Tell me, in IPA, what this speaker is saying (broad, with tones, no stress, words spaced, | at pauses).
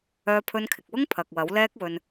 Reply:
œː˧pʰɵ˧nkʰɪ˨k̚wʊ˥ŋ pʰɐ˨k̚wɐ˨˥wlɛː˥k̚ wɵ˧n